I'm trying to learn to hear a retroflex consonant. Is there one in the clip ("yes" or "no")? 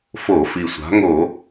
no